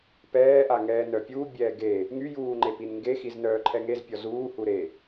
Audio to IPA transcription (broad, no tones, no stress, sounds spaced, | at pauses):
p ɛː ʔ a ŋ ɛː n œ pʲ uː bʲ ɛː ɡ e | ŋ y j uː ŋ͡ǃ e p i n ŋ ɡ e x i z n œː ǃʰ ɛ ŋ e z pʲ ɔ z uː h u ɾ e